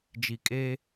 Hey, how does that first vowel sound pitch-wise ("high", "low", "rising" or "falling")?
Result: low